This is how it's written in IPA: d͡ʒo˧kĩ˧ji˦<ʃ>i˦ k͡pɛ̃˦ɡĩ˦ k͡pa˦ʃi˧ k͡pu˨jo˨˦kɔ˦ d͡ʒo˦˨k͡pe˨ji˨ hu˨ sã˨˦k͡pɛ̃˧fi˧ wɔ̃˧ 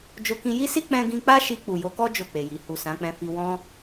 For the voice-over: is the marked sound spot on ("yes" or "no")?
no